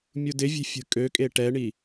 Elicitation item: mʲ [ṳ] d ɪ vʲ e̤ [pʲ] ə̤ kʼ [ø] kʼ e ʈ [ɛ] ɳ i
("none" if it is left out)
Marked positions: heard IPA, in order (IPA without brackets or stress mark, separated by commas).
u, fʲ, ø, ɛ